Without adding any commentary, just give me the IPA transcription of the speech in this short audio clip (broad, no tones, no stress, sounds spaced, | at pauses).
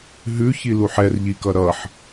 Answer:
ɦ ʉ ç i l u ħ ɛ r ʎ i k ʌ ɾ ʌ ħ